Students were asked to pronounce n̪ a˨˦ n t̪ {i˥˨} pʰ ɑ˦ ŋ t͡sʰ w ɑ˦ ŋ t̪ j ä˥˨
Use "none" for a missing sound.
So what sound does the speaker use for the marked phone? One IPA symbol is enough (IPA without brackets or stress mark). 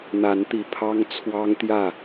i˨˩